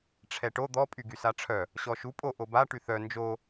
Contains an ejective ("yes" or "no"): yes